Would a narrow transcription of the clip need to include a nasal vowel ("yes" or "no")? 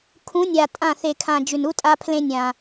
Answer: yes